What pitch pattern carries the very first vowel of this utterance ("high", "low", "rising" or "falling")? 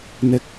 low